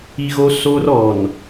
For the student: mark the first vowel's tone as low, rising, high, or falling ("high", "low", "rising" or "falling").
high